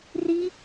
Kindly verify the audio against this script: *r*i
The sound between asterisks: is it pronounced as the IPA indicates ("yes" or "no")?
yes